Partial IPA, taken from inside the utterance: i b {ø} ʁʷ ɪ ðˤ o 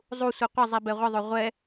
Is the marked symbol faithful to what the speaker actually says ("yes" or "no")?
no